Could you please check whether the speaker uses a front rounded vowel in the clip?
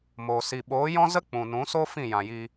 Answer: no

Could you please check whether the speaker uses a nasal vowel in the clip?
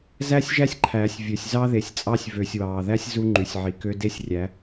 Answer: no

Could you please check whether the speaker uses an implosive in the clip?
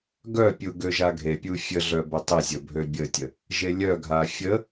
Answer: no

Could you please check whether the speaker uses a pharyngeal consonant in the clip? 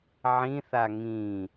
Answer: yes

